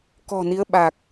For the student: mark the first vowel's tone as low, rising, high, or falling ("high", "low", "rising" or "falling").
low